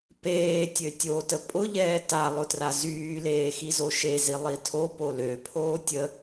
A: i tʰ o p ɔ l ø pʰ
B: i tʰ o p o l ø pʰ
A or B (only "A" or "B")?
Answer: B